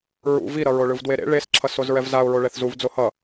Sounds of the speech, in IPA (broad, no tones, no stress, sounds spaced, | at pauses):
ɹ ṵ v i ɾ ʌ ɹ o ɭ ɯ v d w e ɾ ḛ ɭ e s ǁʰ ʌ s o z ɹ ɛ v z a ʊ̯ ɹ o ɭ ɛ θ z u v d͡z o h ʌ